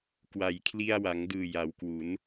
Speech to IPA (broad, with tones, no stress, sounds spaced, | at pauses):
k w a˩˦ j kʰ l i˧ a̯ w a˩˦ ŋ d ɯː˨˩ j a˩˦ w k w u˩˦ n